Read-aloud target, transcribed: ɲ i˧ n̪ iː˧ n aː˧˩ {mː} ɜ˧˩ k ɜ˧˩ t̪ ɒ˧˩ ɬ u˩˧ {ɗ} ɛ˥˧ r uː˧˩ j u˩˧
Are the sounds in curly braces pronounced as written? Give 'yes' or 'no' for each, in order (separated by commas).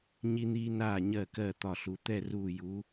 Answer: no, no